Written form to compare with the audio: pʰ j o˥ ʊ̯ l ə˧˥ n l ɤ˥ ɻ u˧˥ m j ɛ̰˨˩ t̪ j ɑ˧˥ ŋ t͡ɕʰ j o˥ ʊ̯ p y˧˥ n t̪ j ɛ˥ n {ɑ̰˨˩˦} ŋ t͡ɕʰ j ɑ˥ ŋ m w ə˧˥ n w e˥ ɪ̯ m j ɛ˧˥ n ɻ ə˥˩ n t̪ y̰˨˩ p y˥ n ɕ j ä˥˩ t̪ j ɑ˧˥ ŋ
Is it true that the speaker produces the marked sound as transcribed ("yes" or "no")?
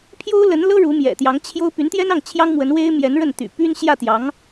no